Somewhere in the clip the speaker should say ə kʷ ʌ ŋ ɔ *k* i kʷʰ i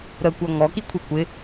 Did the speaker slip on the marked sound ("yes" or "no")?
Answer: no